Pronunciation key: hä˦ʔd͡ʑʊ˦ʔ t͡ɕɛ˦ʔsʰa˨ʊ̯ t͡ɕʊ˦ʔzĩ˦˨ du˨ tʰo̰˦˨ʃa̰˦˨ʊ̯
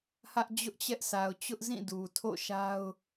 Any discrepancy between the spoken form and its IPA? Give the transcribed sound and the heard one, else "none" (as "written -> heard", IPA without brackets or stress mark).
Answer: a̰˦˨ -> a˦